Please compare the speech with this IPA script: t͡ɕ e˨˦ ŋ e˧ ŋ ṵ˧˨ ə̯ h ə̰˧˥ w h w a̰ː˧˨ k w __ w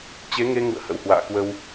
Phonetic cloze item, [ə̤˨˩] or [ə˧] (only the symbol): ə˧